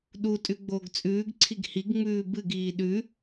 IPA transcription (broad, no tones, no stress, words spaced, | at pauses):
ɗutʼʉ ɡ͡boːɡt͡sʼʉːɡǀʰiɡ hiɡŋ͡mʉː bɨɡiː ɗʉ